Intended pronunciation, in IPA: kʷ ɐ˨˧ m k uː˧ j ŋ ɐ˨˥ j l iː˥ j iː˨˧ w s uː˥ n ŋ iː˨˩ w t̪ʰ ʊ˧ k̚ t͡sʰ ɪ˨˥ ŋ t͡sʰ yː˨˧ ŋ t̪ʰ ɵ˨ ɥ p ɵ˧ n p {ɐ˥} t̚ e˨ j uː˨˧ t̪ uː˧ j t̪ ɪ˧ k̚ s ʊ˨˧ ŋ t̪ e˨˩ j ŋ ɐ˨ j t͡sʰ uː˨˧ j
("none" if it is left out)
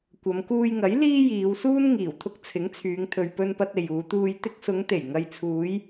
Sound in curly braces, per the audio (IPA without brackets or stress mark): ɐ˧